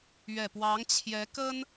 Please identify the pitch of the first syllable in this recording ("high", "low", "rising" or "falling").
low